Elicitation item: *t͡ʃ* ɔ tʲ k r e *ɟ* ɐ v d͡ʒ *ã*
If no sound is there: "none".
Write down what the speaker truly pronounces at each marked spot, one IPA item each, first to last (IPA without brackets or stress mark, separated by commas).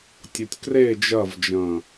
tʲ, d͡ʒ, ɐ̃